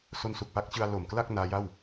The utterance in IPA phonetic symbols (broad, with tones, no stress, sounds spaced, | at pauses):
s o˧ n s u˨˩ k̚ p a˦˥ k̚ t͡ɕ ɯ˧ a̯ l o˨˩ m k l a˥˩ k̚ n aː˦˥ j a˥˩ w